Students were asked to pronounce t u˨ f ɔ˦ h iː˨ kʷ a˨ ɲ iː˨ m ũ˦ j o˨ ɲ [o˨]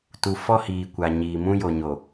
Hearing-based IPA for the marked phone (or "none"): o˨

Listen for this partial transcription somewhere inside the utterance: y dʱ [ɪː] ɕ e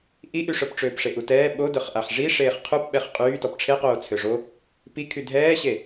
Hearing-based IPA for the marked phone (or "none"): ɛː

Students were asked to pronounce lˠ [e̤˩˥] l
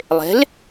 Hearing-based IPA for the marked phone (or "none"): e̤˩˥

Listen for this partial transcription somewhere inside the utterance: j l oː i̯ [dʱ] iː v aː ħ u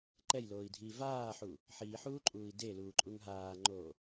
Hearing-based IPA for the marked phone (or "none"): dʱ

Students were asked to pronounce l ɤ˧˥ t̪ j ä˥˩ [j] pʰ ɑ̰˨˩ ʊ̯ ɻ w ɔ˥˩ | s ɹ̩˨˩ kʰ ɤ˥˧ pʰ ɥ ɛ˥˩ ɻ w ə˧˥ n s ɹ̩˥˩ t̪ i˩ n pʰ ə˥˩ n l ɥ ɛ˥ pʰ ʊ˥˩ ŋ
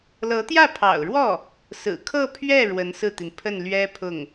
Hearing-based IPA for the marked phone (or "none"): none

